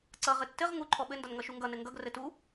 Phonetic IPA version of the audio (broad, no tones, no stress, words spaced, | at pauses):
ǀʌ ʁɘtːɘʁ ŋu ǃʰɔɓɘ ndʌnŋʌʃuŋɡʌ nɘŋɡʌɡ rɘtu